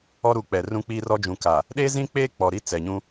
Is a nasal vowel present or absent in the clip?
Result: present